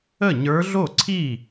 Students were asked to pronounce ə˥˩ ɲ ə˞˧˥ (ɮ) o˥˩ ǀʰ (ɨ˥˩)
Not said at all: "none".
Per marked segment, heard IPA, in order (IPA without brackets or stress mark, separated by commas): ɮ, i˥˩